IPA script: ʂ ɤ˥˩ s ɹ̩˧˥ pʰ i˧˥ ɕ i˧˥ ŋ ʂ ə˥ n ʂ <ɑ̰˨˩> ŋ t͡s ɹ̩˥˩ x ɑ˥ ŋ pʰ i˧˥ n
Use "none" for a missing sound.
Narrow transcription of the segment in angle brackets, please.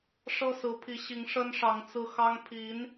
ɑ˧˥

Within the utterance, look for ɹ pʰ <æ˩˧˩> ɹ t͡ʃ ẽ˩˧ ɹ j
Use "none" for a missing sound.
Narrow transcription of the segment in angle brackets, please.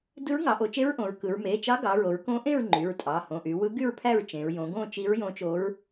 æ˥˧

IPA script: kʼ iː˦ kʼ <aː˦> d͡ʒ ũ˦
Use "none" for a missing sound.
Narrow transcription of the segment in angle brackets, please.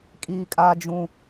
aː˦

